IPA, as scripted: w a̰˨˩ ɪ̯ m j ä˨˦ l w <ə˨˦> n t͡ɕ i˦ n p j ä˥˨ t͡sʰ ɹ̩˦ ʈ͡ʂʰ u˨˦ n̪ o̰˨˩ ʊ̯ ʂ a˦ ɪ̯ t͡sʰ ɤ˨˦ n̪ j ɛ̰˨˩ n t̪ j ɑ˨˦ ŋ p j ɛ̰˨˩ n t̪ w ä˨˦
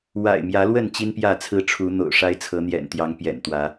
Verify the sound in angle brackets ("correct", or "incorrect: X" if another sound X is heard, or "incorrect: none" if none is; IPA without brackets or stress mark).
incorrect: ə˥˨